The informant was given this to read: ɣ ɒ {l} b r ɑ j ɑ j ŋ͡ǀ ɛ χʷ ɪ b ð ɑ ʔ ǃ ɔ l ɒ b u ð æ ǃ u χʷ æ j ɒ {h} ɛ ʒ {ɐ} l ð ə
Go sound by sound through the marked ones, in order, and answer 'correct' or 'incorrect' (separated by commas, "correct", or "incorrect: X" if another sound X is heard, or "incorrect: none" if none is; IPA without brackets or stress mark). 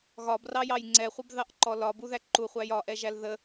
incorrect: none, incorrect: ʔ, incorrect: æ